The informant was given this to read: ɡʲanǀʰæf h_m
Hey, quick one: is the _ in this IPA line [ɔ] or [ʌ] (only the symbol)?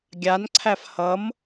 ʌ